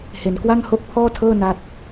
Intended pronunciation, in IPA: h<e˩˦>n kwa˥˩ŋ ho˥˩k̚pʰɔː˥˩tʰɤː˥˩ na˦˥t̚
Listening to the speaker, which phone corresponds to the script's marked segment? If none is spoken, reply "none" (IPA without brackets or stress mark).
e˩˦